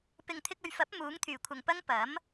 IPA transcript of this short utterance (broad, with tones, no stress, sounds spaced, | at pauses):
p ɪ˨ ŋ t̪ʰ ɪ˧ k̚ ɵ˨ ɥ f ɐ˨˥ p̚ m uː˨˥ ŋ t̪ʰ yː˨˩ kʷʰ ɐ˨ ŋ p ɐ˥ ŋ p ɐ˨˥ m